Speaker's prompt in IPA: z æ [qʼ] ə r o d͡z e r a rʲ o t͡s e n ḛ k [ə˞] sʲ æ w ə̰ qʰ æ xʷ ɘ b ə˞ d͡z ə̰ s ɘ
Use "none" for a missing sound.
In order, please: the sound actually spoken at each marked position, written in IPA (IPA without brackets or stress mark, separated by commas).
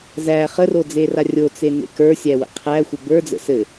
χ, ə˞